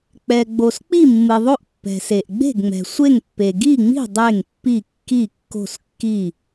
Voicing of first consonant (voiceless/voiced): voiceless